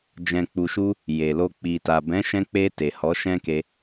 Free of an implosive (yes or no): yes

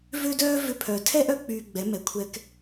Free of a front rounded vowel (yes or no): no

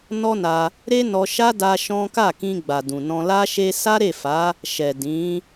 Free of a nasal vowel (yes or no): no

